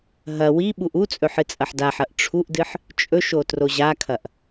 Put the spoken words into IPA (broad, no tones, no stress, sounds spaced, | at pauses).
ɦ ɐ w i ɓ u ʔ u t͡sʼ ɵ ħ ɨ t͡sʼ ɐ ħ d a ħ ɐ ʔ ʈ͡ʂʰ u ʔ d ɨ ħ | t͡ʃʼ ɵ ʃ o t r o ʑ a kʰ ɐ ʔ